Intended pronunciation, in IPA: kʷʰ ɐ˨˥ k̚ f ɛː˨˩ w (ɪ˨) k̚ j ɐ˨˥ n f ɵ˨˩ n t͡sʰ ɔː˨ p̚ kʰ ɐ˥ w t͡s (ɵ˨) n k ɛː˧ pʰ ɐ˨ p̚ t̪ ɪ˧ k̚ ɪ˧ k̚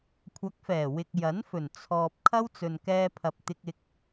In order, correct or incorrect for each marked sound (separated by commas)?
correct, correct